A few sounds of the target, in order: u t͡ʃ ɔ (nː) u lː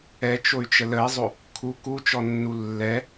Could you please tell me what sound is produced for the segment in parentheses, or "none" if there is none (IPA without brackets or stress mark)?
nː